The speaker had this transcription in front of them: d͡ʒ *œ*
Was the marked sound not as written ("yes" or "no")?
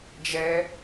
yes